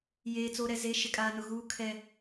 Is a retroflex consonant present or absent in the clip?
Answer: absent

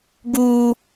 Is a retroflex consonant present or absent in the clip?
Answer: absent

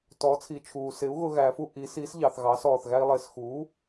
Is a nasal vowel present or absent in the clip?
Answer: absent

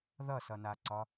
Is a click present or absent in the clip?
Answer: present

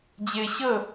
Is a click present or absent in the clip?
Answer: absent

